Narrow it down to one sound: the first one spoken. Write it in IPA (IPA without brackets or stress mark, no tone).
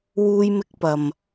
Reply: w